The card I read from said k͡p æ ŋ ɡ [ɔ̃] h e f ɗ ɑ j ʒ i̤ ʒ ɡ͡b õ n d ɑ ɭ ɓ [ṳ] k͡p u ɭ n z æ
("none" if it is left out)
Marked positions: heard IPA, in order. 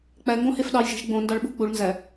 õ, ṳ

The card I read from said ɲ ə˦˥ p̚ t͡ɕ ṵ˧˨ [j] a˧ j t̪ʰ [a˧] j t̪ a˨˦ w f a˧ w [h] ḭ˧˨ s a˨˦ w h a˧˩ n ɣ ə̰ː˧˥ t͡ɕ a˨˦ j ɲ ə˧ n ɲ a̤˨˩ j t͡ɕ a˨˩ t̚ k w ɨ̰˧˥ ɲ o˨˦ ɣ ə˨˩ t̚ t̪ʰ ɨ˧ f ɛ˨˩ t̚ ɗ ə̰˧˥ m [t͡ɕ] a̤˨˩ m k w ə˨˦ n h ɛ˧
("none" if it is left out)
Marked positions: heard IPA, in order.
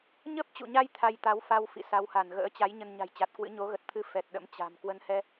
ɲ, a˧, f, t͡ɕ

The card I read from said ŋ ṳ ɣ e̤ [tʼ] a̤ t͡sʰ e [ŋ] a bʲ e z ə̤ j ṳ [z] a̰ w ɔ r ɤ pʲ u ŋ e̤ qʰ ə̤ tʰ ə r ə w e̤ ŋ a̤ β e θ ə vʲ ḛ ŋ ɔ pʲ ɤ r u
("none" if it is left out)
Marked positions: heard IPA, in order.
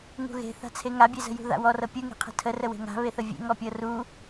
θ, ŋ, ð

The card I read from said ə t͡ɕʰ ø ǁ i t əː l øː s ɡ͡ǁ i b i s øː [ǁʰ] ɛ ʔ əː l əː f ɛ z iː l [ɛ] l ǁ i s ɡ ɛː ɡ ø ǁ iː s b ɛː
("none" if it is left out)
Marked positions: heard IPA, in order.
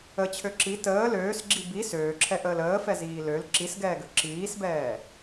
ǁʰ, ø

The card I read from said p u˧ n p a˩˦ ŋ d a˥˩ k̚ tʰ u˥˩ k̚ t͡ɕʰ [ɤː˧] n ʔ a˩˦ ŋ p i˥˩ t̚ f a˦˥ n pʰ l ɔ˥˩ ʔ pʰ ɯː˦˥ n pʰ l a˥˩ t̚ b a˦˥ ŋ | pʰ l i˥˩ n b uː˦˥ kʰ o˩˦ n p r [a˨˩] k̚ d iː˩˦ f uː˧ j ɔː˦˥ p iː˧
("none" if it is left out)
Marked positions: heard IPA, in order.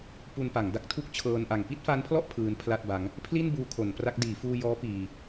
ɤː˧, a˦˥

